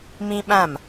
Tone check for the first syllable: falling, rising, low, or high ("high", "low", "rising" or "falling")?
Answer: high